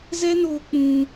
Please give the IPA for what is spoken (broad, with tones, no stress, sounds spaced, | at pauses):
z ɛ˦ n oː˧ k͡p ũ˧